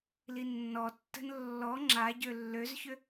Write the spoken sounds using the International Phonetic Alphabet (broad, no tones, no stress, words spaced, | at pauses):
linːɔtːə̤n lːɔ ŋ͡ǁa ɟølːøzçʏ